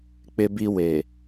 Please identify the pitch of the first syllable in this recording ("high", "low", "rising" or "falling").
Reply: high